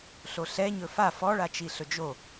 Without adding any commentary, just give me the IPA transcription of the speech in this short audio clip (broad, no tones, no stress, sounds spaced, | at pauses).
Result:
ɬ o ɬ ɛ ɲ ɵ f a f ɔ ɭ a t͡ʃ i ɬ ɵ d͡ʒ o